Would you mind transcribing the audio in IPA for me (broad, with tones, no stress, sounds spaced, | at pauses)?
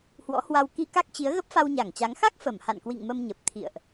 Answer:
h w ɔ̰˧˥ h w a˧ w k i˧ k a˦˥ k̚ t͡ɕ i˨˦ ə̯ ɣ ə˦˥ p̚ f a˧ w ɲ a˧˩ ŋ t͡ɕ a˨˦ ŋ x a˦˥ k̚ f ə˧˩ m h a̰˧˨ n k w ḭ˧˨ ŋ m ə˧ m ɲ ə˨˩ p̚ t̪ʰ ḭ˧˨ ə̯ ʔ